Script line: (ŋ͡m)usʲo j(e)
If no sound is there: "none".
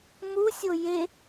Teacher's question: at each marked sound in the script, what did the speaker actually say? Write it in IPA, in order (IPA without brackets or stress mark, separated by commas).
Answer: m, e